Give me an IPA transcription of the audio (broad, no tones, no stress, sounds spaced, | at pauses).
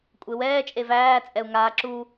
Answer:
kʷʼ e w ɛː t͡ʃʼ e v æː t͡sʼ ɛ u̯ ŋ a ǁ u